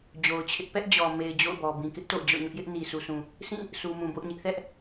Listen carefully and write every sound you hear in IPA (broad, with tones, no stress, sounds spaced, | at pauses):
d͡ʑ o˨ ʊ̯ t͡ɕʰ ɪ˦ ʔ p ɛ˦ ʔ d͡ʑ ɔ˨ m e˨ ɪ̯ d͡ʑ o̰˦˨ ʊ̯ b ɔ˨ b ĩ˨ k ɪ˦ ʔ t o̰˦˨ ʊ̯ d͡ʑ ɔ̰˦˨ ɲ ʊ˦ ʔ j ɪ˦ ʔ n i˨ sʰ u˨ s ũ˨ | s ĩ˦˨ | s u˨ m ũ˨ b o̰˦˨ ʊ̯ ɲ ɪ˦ ʔ θ ɛ˦ ʔ